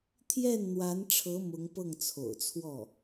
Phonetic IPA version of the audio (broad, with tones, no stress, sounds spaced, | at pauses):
t̪ʰ j ɛ˥˩ n n̪ w a˧˥ n ʈ͡ʂʰ ɤ˧˥ m ʊ˧˥ ŋ p ɤ˥˩ ŋ t͡sʰ o̰˨˩ ʊ̯ t͡sʰ w ɔ˥˩